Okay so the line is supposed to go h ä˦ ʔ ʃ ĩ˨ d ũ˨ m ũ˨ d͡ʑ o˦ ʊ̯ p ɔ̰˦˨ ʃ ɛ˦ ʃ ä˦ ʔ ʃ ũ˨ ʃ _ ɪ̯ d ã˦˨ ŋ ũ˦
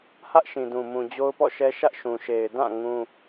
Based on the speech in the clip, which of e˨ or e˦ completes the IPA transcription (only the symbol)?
e˨